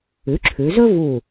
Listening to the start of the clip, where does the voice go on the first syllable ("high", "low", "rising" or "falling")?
rising